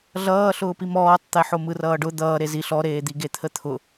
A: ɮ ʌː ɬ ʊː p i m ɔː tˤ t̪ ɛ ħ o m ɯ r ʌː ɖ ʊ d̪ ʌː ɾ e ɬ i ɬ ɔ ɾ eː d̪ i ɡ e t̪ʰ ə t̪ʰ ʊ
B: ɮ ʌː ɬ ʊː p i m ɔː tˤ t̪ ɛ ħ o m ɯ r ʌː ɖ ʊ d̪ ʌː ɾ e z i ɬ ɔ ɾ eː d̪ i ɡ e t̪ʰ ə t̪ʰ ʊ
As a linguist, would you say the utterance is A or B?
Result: B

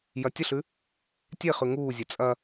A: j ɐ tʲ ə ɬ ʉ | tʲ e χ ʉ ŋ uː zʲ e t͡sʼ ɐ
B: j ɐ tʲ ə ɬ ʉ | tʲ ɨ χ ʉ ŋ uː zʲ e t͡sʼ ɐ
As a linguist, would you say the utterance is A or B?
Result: A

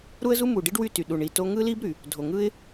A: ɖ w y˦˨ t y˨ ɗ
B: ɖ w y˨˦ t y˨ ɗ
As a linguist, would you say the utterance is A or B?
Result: A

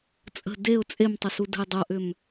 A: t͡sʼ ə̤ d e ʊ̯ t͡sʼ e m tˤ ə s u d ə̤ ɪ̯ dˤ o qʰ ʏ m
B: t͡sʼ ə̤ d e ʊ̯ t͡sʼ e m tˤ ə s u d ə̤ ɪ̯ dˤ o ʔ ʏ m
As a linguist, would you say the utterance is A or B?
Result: B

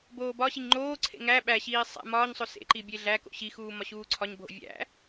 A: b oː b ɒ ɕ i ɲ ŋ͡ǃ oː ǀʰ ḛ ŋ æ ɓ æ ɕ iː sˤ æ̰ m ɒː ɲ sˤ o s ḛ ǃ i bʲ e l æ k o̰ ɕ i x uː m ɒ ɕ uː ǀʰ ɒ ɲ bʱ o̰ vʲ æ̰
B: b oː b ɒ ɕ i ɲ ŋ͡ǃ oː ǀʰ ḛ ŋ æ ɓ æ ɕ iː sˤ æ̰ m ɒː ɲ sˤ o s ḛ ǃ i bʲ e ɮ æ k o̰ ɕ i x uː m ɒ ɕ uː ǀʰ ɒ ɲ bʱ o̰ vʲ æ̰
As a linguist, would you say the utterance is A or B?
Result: B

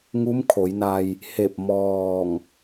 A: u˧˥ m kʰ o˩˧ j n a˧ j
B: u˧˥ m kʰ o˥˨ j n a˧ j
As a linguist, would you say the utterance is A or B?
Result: A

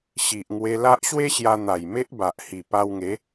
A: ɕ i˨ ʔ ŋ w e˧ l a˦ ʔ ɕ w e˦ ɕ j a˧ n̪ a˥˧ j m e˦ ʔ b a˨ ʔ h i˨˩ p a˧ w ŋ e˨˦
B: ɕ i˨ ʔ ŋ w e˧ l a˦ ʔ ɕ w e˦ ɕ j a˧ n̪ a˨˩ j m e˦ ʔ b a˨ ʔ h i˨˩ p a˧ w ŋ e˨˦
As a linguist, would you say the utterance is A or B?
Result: B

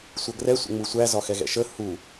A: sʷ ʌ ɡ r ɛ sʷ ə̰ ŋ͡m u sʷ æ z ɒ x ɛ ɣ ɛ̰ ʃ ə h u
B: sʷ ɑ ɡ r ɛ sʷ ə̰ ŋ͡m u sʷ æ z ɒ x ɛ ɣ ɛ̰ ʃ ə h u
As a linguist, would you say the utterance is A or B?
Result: A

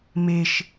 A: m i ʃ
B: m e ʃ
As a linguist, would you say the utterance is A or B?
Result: B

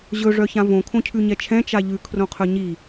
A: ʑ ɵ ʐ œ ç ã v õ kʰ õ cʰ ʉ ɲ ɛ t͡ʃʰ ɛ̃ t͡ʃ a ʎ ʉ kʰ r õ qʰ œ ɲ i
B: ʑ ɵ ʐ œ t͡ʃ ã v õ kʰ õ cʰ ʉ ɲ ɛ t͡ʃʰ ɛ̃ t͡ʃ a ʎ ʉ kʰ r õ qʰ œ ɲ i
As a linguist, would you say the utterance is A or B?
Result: A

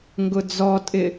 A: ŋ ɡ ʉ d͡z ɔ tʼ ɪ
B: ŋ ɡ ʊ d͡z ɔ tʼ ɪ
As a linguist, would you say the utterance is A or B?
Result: B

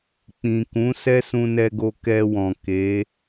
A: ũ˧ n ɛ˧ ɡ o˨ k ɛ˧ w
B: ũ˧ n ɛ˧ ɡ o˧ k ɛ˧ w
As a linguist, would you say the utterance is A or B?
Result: B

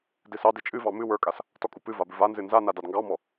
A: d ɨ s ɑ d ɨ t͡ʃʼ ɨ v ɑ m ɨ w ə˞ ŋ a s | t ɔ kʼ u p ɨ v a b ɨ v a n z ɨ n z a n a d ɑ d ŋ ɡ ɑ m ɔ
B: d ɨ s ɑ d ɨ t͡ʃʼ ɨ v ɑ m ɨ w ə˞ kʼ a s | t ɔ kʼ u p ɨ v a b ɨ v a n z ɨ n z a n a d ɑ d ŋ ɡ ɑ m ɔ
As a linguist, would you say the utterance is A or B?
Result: B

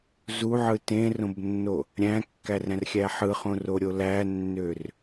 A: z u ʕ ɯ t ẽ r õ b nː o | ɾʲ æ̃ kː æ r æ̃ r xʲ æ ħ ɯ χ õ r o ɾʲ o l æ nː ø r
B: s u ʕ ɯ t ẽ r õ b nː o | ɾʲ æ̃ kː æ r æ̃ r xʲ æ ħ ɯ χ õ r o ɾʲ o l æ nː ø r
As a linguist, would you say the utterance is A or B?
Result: A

